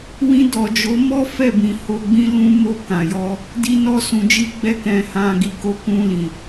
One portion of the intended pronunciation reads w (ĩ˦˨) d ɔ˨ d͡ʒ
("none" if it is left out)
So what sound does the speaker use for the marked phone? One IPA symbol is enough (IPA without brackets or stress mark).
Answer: ĩ˧